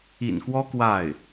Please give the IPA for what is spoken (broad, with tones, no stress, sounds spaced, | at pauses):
ḭ˨˩ n k w ɔ˥ k w a˥˩ ɪ̯